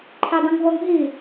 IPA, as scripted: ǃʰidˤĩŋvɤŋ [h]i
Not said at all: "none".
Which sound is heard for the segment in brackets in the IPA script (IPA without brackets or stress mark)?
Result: ɦ